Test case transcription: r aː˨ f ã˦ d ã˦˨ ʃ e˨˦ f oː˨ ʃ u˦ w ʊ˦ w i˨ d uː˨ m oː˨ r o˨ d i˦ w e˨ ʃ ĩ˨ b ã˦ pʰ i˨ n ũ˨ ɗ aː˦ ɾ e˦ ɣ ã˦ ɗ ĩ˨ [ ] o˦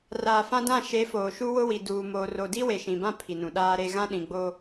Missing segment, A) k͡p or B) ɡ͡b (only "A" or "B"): B